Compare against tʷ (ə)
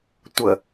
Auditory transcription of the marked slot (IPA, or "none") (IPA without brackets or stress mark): ə